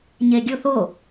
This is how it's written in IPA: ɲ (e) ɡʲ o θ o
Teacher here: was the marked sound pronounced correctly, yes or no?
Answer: yes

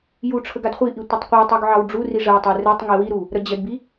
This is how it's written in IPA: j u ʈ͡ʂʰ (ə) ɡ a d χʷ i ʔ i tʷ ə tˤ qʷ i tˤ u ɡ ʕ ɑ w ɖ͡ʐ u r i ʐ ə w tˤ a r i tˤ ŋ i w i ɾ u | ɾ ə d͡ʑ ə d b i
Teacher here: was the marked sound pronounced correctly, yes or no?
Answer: yes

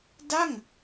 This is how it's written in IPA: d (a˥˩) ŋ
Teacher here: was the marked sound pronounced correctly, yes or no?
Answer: yes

